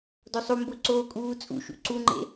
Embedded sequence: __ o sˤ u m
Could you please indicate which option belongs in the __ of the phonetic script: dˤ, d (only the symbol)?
d